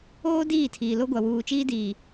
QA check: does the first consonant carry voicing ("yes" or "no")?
yes